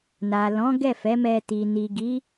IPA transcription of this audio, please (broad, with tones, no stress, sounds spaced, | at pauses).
n a˨ l ɔ̃˨˦ ɡ ɛ˦˨ f ɛ˨˦ m ɛ˧ t i˨ n i˨ ɡ i˨˦